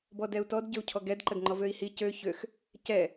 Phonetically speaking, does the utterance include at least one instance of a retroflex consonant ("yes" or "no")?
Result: no